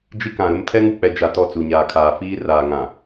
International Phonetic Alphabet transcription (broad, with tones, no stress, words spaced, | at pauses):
d͡ʒi˦kã˨ɾʊ˦m tʰɛ˦ŋu˨k͡pɛ˨d͡ʒa˨ tɔ˦˨t͡su˨ɲaː˨ kʰaː˨fiː˦ raː˨ŋã˨